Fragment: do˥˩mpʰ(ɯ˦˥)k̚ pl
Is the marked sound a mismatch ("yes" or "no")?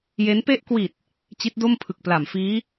yes